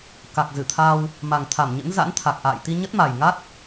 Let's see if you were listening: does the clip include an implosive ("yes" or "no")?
no